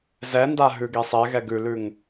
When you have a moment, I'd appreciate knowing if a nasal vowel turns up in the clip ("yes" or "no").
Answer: no